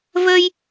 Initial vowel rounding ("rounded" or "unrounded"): unrounded